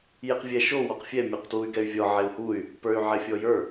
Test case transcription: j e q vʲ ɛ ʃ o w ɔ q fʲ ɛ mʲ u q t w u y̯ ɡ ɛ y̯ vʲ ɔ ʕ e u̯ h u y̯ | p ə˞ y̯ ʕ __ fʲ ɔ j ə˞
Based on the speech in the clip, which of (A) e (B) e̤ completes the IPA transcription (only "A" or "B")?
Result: A